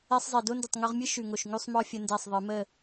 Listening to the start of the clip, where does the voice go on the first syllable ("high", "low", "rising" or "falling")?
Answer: high